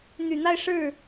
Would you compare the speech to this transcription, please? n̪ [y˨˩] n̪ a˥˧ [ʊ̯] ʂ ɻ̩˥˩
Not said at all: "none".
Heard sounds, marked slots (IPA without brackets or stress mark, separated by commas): y˨˩, ɪ̯